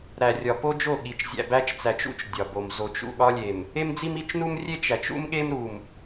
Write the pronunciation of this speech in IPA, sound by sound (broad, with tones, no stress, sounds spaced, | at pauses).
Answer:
ɾ æ˨ rʲ ɒ˨ p o˦ d͡ʒ o˦˨ ɠ i˨ t͡ʃ zʲ æ̰˨ b æ˦ t͡ʃ t͡s æ˨ t͡ʃ ṵ˦ t͡ʃ dʲ ɒ˨ b o˨ m z o˨ t͡ʃ ṵ˦˨ ɠ ɒ˦ lʲ e˨ m | e˦ m d͡z i˦ m i˦ t͡ʃ n u˦ m rʲ e˦ t͡ʃ æ˨ t͡ʃ ṵ˦ m ɠ e˦ m ɾ u˨ m